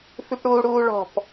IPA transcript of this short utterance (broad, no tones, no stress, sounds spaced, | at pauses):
f ʉ p ɽ uː ɽ uː ɭ ɔ̤ p